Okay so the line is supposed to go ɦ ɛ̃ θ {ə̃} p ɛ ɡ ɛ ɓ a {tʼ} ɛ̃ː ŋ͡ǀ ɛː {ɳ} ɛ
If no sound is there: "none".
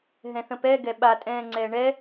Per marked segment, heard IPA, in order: ə̃, tʼ, ɳ

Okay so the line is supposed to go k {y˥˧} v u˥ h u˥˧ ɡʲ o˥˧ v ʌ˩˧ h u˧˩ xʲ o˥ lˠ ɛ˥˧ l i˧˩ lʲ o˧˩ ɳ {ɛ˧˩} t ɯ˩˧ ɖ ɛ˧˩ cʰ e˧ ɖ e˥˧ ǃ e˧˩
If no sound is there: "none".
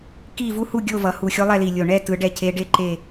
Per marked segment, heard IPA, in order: i˥˧, ɛ˥˧

